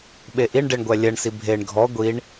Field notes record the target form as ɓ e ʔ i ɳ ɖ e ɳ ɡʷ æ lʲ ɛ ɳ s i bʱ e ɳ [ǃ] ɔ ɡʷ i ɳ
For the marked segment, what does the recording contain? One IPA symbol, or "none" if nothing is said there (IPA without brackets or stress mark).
ɡʱ